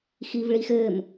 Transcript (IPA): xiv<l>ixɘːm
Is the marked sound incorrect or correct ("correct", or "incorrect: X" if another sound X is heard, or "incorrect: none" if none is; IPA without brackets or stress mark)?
incorrect: ɭ